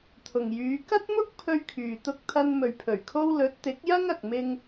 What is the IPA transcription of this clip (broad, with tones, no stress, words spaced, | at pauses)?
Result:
t̪ʰʊ˨ŋjyː˨˧ kɐ˥t̚mʊ˥k̚ pʰɵ˧ɥkʰyː˨t̪ʊ˧k̚t̪ʰɐ˧n mɵ˨ɥpʰɵ˨˩ɥkʰo˧w lɵ˨˥t̚t̪ɪ˨˥k̚jɐ˥ŋ ɐ˧k̚mɪ˥ŋ